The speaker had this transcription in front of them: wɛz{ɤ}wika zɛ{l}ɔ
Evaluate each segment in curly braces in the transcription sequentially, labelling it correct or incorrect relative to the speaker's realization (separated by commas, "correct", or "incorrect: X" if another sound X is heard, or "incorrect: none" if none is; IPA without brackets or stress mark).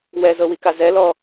correct, correct